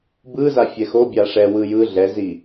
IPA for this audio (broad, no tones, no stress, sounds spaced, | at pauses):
b ɯ z a fʲ ɛ x o bʲ a ʂ ɛ w ɯ j ɯ ɮ ɛ z i